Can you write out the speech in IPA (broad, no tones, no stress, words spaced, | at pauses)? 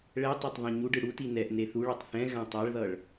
ɭɛtˤɛtˤ ðˤẽɲuɖɯ ɽuti nɛʔ neθuɭʌtˤ θɛ̃ ɣãtˤaɭðʌɭ